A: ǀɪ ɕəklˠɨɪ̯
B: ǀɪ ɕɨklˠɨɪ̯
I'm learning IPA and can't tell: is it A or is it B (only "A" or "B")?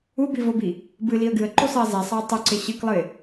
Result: B